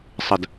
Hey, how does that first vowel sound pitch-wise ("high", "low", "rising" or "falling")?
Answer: falling